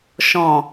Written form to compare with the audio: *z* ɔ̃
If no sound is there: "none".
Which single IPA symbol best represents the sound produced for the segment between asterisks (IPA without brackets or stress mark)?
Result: ʃ